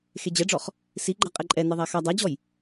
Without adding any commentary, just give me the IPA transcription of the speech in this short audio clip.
x e d͡ʑ ɛ ɖ͡ʐ ɔ χ | s i ɡ͡ǃ a qʼ ɛ ǃʼ ɛ n ɛ ðˤ a x a dˤ a d͡ʑ ɔ j

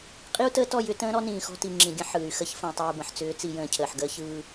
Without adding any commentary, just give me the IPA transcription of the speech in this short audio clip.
qʼ i˦ u̯ t əː˦ t ɔ˦˨ j ʏ˦ t ə̃ː˦ ɾ ɔ˦ n ĩː˨ x ɔ̤˦ t i˨ ŋ͡ǁ ĩ˨ ɡʲ ə̃˦ ħ ɯː˨ y̯ x ə˦ ç f ə̃ː˨ tˤ iː˨ b ə̃˨ ħ t͡s ʏː˨˦ t͡s i˨ j ə̃ː˨ cʰ əː˨ ħ ɡ əː˦ ç ɯː˦

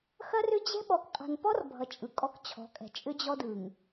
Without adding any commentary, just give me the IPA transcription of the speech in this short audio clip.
x ɐ˦ r ʏ˦ d͡ʑ ɛ̤˦ ɓ ɔ˨ k qʼ a̤˨ n p ɔ˦ r bʱ ʌ˨ t͡ʃʼ ɯ˨ kʼ ɔ˦ k t͡ɕʰ ɔ̤˨˦ kʼ ɛ̤˨ t͡ʃʼ ʏ˦ d͡ʑ ɔ˦ d ɯ˨ ŋ

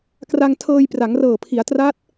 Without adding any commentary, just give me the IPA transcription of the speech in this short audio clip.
k r a˧ ŋ tʰ ɤː˧ j p r a˩˦ ŋ r ɤː˨˩ pʰ i˩˦ a̯ t r a˦˥ t̚

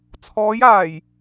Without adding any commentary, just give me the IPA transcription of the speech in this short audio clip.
t͡sʰ ɔː˨˧ j aː˨˩ j

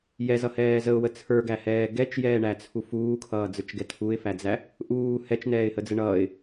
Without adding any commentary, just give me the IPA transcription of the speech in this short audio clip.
j ɛ z ʌ h ɛː z ə ʊ̯ w ə t͡sʰ ə˞ ɡ æ h ɛː ɡ ɛ t͡ʃ j ɛː ɳ æ t͡sʰ u f uː kʰ ʌː d͡z ə˞ t͡ʃ ɡ ɛ tʰ u ɪ̯ f æ d͡z æ | ʔ uː h ɛ t͡ʃ n ɛː ɪ̯ h ə d͡z ə ɳ ʌː ɪ̯

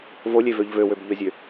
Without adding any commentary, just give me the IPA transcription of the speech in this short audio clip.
v o lʲ e v ø ʎ v ø w ø b ʎ ø zʲ ø

